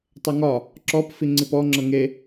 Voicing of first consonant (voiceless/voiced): voiceless